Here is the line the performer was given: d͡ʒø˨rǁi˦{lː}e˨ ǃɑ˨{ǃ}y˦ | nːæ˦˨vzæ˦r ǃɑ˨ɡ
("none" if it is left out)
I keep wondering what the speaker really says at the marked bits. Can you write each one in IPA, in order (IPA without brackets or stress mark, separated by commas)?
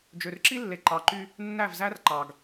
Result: lː, ǃ